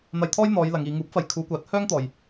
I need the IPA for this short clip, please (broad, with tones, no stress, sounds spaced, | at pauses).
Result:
n̪ ɐ˧ j t̪ʰ ɔː˥ j n̪ ɔː˨˧ j l ɐ˨˧ ŋ iː˨˧ ŋ uː˨˥ p̚ f ɐ˨ j kʰ uː˨˧ kʷ aː˨˥ t̚ h œː˥ ŋ t̪ ɔː˨ j